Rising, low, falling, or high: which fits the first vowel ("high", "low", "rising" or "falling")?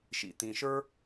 low